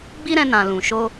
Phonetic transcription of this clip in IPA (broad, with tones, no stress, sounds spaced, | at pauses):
ɡ͡b i˦ ɾ ɛ̃˧ n ã˨ l ũ˨ ʃ o˧